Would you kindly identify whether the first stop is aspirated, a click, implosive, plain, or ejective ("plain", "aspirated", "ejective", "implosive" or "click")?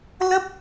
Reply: plain